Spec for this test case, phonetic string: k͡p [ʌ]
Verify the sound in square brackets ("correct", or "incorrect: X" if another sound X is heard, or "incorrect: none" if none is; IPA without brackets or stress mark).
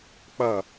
correct